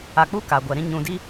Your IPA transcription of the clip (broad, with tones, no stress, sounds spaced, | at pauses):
a˨ k͡p u˦ k a˨ ɡʷ ɛ˨ ɾ ĩ˦ ɲ ũ˨ d i˦